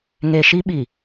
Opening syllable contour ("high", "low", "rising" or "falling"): low